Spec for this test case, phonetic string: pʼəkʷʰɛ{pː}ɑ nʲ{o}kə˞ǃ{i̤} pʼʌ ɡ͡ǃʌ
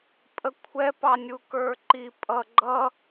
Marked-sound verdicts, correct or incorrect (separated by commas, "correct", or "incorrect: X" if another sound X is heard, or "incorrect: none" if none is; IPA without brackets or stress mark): incorrect: p, incorrect: u, incorrect: i